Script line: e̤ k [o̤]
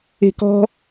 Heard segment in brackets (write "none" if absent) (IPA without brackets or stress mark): ɔ̤